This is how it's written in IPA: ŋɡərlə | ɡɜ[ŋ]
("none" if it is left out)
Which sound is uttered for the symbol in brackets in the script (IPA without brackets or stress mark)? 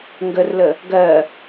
none